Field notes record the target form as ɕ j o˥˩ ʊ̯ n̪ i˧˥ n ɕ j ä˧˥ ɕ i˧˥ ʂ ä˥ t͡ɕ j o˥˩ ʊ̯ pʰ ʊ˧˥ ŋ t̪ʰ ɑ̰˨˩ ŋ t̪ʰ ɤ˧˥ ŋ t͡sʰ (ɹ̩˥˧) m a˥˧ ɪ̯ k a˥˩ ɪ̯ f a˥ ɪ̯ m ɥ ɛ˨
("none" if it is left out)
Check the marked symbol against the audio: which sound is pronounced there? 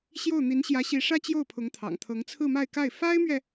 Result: ɹ̩˥˧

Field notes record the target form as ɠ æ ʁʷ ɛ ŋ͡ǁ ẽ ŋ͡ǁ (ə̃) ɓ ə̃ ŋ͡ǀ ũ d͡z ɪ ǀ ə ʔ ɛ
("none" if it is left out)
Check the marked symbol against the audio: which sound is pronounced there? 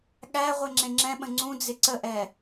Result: ɛ̃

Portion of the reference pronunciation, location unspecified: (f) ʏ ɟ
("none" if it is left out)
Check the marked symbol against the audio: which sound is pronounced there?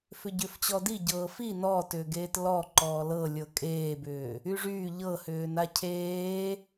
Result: f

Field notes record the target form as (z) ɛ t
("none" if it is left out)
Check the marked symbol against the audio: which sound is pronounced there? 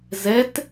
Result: z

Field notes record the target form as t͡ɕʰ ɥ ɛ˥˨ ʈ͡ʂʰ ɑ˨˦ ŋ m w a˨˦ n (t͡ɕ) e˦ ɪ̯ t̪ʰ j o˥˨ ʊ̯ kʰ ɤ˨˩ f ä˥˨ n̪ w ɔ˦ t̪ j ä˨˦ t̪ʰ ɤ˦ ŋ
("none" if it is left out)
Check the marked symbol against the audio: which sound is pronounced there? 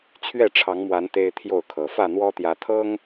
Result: t̪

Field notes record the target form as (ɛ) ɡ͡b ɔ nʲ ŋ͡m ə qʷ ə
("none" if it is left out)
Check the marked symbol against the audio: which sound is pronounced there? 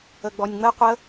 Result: ə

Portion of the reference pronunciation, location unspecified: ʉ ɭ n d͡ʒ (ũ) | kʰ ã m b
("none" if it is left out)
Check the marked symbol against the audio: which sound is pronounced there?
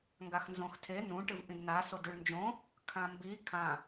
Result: õ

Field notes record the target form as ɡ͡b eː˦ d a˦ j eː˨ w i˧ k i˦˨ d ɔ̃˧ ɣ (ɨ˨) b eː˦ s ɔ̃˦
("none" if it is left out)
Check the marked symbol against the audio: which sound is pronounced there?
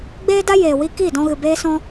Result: ɨ˨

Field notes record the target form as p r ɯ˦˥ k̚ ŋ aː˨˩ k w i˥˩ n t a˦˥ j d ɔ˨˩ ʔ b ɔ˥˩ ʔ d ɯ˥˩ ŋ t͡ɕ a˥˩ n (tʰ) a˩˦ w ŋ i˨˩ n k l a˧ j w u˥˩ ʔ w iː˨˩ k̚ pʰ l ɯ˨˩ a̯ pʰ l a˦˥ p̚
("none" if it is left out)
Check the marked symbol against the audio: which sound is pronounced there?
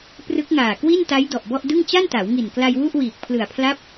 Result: t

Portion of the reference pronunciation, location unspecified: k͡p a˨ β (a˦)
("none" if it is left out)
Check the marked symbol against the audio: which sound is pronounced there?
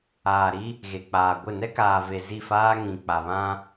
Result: ã˦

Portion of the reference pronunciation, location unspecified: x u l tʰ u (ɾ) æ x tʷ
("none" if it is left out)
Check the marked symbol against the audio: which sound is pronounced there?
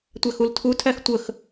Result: tʰ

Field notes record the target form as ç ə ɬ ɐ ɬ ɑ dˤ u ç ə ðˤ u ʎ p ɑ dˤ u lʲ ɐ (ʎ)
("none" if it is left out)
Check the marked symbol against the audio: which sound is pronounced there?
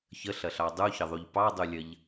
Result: ʎ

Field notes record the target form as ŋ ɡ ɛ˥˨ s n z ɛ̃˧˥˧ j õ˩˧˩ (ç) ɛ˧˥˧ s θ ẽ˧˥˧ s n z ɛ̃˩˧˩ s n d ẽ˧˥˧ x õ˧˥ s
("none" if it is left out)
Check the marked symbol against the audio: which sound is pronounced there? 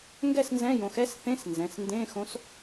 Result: x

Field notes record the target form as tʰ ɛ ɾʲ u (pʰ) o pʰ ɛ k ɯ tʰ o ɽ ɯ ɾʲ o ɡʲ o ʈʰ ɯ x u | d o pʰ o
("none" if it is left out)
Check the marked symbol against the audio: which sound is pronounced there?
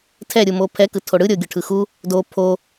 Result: m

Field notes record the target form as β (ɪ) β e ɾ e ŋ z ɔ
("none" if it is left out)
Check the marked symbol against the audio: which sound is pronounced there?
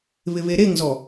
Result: ɪ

